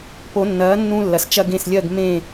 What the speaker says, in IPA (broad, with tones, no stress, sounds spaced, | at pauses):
p o˨˩˦ nː ɐː˨˥ nː ũ˦ lː ɐ˨˩ s t͡ʃ ɐ˦ ɡ ẽ˦˨ s lʲ ɜ˦˨ ɡ m ẽ˦˨